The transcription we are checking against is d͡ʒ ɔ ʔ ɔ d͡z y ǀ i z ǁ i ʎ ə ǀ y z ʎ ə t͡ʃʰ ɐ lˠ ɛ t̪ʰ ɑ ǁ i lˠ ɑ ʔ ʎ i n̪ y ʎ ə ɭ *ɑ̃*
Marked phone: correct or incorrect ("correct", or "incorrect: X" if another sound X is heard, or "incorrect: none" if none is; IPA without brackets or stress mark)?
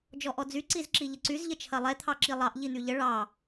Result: incorrect: ɑ